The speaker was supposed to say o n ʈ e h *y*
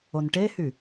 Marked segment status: correct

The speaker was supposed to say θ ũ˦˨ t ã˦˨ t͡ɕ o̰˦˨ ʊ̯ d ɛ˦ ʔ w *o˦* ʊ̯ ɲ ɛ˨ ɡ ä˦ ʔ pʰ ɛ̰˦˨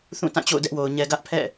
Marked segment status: incorrect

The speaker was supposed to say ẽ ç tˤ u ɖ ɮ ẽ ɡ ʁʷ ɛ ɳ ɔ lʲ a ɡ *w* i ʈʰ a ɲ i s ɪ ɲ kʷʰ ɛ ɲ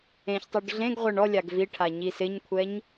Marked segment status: incorrect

